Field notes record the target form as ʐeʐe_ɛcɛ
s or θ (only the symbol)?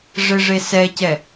s